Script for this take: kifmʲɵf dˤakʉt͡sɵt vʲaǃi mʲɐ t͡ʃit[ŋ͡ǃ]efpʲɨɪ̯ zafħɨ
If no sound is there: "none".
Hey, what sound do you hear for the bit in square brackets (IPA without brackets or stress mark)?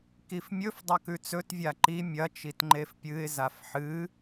ŋ͡ǃ